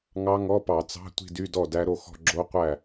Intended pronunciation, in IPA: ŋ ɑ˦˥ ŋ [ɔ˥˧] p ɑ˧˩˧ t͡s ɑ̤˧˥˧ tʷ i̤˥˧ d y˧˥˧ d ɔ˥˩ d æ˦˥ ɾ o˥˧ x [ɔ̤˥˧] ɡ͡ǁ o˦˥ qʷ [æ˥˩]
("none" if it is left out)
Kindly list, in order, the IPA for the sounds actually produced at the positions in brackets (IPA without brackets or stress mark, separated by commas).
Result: ɔ˧˥˧, ɔ̤˥˧, æ˥˩